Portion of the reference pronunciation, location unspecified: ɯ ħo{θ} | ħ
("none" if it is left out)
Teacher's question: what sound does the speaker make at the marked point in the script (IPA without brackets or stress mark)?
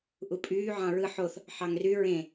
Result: θ